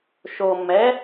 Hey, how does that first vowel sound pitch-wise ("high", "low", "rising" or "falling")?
low